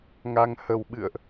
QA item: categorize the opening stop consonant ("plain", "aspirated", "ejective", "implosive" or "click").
implosive